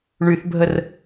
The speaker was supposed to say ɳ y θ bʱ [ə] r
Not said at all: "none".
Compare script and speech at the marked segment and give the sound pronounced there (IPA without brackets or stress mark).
ə